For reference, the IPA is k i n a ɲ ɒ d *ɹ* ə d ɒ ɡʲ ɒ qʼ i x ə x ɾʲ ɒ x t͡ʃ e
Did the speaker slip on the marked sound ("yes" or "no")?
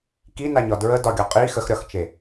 no